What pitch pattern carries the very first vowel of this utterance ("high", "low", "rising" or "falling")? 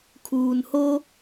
low